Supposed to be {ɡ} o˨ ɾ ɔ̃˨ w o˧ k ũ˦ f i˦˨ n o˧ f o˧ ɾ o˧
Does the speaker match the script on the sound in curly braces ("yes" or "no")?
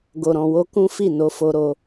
yes